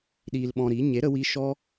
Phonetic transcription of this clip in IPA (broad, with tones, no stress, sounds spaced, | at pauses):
ɗ iː˧ l ɓ ɔ̃˧ ɾ i˨˦ ɲ e˨˦ ɾ ə˧ w i˧ ʃ ɔ˦